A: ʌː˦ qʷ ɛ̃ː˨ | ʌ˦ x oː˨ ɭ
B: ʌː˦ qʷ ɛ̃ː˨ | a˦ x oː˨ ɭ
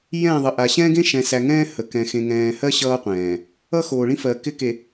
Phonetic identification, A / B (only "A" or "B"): A